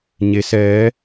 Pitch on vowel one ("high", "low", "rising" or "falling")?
rising